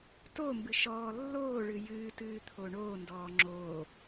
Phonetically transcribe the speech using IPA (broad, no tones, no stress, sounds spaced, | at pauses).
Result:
t o m b ɨ ʃ ɔː lː oː ɭ ɨ j ɨː t ɨː t̪ʰ o ɳ oː n d ɔː ŋ͡ǁ oː